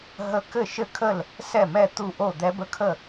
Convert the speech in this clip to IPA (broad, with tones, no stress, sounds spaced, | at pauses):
ɦ ə˦˥ k ɘ˥˩ ʃ ɘ˥˩ kʰ ə˥˩ l | s ɛ˥˩ m ɛ˥˩ t̪ u˥˩ ʔ o˥˩ d̪ ɛ˦˥ b ə˦˥ kʰ ə˥˩